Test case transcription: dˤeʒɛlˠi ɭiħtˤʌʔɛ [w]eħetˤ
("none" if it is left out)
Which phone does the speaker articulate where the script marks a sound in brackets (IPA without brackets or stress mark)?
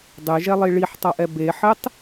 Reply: b